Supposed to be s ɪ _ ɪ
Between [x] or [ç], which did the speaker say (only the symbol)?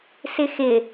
x